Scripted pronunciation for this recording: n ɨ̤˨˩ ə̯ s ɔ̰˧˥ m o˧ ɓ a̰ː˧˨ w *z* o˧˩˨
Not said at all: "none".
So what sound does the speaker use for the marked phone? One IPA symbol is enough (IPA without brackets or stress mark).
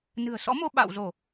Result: z